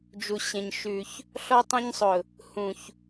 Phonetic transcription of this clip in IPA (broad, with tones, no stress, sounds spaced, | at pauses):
d͡ʒ u˨ ɕ ẽ˨ ɲ ʃ ʉ˨ ç | ɬ ɔ˦ tˤ ẽ˦ ɲ sˤ ʊ˨ | h ũ˨ ç